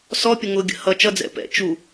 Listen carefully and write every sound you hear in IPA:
sɔpʲə ŋʊɡʲə̰hʌ t͡ʃʌd͡zɛ̰ pɛ̰ t͡ʃu

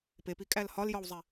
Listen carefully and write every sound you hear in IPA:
pepikʼæl hɒljɒwzˤe

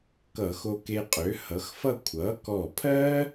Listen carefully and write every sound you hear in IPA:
kʌ˧˩˧xo˧ke˧ qʼø˩˥hʌ˩˥xfʌ˥˨ kʷʰʌ˩˥kɔ˧˩pʰɜ˥

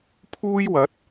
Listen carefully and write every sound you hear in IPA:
pʰuː˥jwɐ˨˥t̚

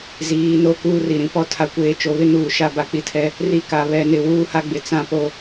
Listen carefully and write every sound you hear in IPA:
ziː˨˦ no˦kuː˦ri˨ ɾĩ˦pɔ˦ tʰa˨kʷeː˨ t͡ʃo˨βɪ˦nuː˨ ʃa˦ ba˨k͡pi˦tʰɛ˦ | ri˦ka˨βɛ˦˨nɪ˦˨ wuː˦ha˦ɡ͡bɪ˨ t͡sã˦po˦

